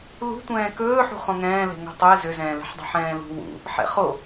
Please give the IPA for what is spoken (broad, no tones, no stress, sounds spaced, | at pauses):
l ṳ tʷ ɛ̃ː k ɵː ħ ṳ χ õ ŋ ɛ̃ː l ɛ̤ ŋ o̤ tˤ ɵ ɪ̯ z ʏ z ɛ̃ː l ɛ̤ ħ dˤ o̤ ħ ɛ̃ː l ṳ w ṵ | ħ ɛ̰ χ o